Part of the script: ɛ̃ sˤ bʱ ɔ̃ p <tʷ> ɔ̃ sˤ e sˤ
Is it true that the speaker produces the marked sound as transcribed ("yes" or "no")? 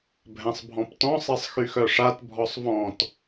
no